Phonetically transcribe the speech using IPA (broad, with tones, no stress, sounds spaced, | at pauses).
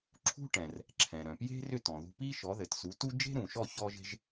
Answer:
ǁʰ ṳ˥ ʈ ɛ̃˩ r | ǁʰ ɛ̃˩ ɾ œ̃˩ p j e̤˥ r ʏ˥˩ t ɔ̃˩ ð ṳ˧ p i˥ ʃ ɔ˩˥ ð ɘ˩ t s u˩˥ t u˥ d͡ʒ e̤˥ ɾ ũ˩ ʃ ɔ˥˩ ç ɔ˥ ʒ e̤˥ ʒ